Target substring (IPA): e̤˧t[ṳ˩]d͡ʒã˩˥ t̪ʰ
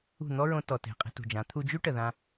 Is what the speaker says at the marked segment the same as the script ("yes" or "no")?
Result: yes